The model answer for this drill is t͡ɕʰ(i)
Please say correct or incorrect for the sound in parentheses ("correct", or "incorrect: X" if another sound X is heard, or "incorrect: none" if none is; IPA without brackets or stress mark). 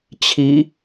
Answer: correct